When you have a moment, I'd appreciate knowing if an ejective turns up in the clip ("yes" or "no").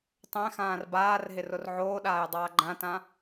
no